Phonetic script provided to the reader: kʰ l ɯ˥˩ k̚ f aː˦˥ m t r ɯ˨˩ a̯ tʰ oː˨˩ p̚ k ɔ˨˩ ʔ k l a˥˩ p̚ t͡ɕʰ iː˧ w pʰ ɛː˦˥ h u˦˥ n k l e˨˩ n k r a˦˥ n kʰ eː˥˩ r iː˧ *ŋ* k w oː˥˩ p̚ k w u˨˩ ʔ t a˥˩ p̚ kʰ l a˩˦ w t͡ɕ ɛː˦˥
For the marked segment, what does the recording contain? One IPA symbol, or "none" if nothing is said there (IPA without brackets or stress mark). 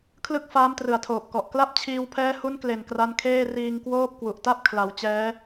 ŋ